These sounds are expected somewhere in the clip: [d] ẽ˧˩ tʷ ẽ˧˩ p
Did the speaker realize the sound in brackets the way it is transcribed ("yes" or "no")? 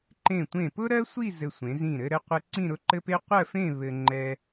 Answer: no